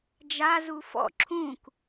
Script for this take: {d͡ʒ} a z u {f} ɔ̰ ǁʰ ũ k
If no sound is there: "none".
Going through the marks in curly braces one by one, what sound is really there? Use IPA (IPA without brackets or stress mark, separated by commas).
d͡ʒ, f